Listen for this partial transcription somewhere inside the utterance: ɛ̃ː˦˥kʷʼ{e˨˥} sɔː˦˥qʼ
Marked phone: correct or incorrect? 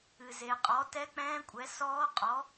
incorrect